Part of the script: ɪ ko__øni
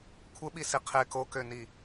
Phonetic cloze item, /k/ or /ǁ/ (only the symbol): k